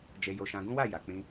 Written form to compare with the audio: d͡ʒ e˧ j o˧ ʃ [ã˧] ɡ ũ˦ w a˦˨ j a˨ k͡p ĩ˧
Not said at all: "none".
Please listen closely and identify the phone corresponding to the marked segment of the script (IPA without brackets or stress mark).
ã˧